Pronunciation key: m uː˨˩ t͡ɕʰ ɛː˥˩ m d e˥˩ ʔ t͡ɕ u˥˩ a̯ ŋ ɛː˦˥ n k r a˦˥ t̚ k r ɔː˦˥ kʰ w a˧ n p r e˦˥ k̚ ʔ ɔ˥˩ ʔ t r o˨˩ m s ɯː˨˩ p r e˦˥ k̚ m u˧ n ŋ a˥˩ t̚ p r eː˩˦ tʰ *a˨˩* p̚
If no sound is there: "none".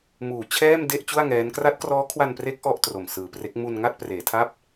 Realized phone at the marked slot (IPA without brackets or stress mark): a˥˩